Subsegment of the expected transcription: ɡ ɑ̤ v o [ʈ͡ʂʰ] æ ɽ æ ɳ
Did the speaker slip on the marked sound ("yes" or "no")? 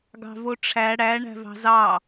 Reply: no